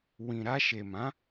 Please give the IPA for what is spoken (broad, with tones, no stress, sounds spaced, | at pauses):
w ĩ˨ ɾ a˧ ʃ e˨ m ã˨˦